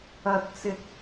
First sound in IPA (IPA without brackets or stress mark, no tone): ɐ